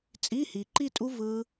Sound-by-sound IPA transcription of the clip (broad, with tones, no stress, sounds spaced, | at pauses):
t͡sʼ i˧˥˧ h i˨ ǃ i˥˧ tʼ u˦˥ v ɯ˦˥